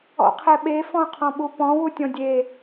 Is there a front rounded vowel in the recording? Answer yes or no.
no